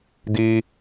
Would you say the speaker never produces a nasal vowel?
yes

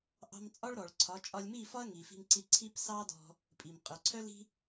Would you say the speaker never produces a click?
no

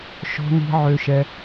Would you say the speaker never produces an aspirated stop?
yes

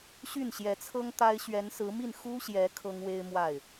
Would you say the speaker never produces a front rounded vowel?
no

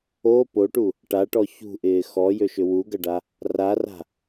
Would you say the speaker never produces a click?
yes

